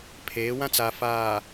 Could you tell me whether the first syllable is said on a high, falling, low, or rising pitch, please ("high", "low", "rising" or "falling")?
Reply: rising